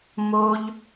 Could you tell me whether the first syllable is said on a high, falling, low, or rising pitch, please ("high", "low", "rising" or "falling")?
high